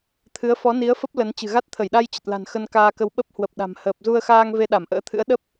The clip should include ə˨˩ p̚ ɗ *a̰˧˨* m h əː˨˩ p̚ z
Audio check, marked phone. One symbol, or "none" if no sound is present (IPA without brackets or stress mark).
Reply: a̤˨˩